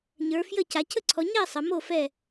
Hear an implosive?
no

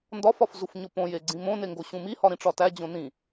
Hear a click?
yes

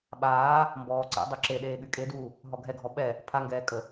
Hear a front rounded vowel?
yes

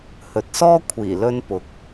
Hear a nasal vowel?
no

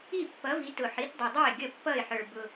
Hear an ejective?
no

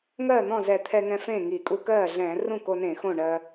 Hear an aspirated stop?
yes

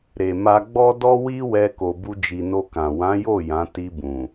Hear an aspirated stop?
no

